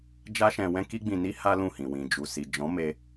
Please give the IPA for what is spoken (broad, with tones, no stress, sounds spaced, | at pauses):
d͡ʒ a˦ ʃ ɛ̃˧ w ɛ̃˦ k i˦ ɡ͡b ĩ˧ n i˦ h a˦ l ũ˦˨ h ĩ˨ w ĩ˨ d͡ʒ u˨ s i˨ d͡ʒ ɔ̃˨˦ m e˧